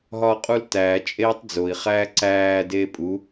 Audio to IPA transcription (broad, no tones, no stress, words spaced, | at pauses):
ɦɒːqʼultæː t͡ʃʼeːtˤd͡zoi̯ χæːǀæː deːpʼu